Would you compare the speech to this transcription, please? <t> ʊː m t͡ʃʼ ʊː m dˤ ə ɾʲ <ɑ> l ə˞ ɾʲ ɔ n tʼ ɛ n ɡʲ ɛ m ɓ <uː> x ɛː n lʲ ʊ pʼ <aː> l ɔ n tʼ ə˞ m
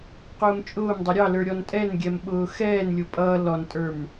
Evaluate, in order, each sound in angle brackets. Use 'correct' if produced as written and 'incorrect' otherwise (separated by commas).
incorrect, correct, incorrect, incorrect